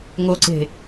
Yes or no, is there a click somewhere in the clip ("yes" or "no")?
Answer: yes